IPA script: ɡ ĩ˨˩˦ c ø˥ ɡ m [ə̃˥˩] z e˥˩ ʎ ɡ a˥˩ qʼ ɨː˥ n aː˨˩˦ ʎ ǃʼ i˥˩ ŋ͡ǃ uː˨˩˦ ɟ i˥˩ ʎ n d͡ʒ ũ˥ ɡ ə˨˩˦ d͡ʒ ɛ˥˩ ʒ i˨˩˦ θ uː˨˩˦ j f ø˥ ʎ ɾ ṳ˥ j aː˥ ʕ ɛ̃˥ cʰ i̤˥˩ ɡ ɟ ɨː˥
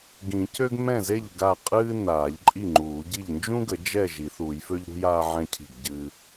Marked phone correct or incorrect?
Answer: incorrect